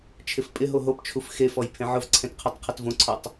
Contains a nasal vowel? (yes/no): yes